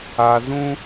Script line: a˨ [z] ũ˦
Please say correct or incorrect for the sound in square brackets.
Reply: correct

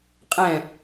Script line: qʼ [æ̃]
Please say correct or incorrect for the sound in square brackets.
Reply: incorrect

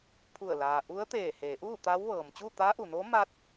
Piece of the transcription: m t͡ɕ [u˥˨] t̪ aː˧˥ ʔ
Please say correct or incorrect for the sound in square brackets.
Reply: correct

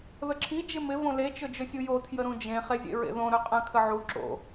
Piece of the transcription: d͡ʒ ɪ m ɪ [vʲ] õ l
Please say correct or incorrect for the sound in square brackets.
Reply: incorrect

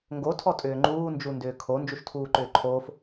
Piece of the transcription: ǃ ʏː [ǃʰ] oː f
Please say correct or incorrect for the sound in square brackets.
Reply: correct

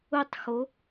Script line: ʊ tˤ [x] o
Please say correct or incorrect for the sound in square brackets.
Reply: correct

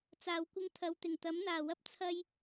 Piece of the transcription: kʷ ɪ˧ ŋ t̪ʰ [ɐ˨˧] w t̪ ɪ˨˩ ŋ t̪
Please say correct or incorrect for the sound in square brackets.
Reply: correct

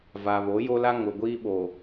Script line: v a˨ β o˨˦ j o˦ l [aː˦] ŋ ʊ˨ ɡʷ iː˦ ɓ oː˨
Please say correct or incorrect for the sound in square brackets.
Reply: incorrect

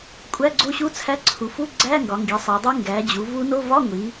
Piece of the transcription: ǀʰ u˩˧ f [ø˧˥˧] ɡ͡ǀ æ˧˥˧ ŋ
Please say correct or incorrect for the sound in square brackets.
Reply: incorrect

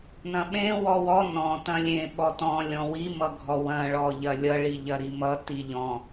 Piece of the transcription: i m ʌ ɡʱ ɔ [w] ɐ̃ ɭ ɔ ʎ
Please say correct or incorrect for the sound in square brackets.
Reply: correct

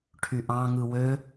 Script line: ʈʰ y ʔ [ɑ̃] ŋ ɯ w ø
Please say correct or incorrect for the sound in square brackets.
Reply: correct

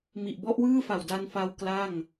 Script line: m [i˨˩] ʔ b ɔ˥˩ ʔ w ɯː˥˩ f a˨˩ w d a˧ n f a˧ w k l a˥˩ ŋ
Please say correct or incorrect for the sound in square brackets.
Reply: correct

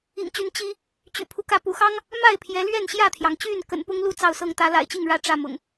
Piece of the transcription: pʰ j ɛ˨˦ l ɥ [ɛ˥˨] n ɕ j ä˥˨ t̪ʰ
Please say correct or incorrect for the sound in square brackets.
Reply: correct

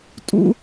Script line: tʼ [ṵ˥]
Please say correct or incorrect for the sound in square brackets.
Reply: correct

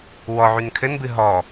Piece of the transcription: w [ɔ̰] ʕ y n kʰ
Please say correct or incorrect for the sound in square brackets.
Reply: incorrect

